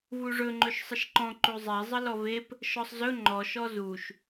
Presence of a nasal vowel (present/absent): present